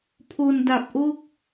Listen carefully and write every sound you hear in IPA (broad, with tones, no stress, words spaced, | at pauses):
pʰo˧nda˨˩p̚ ʔo˥˩k̚